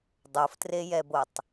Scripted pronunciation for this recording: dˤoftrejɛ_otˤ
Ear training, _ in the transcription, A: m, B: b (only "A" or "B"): B